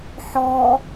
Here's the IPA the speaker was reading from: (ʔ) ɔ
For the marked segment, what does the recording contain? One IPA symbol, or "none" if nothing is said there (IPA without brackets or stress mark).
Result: ħ